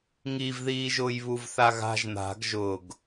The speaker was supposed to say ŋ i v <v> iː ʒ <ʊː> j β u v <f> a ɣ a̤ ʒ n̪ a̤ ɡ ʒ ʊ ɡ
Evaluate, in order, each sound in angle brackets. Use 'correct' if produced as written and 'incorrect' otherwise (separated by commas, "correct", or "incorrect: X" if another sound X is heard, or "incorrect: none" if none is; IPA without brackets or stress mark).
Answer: incorrect: ð, correct, incorrect: θ